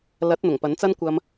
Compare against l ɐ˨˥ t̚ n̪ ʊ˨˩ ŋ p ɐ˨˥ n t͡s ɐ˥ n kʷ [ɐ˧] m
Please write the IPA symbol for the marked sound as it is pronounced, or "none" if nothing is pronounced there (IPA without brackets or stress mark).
ɐ˧